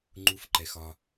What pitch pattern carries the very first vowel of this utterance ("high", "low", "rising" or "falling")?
high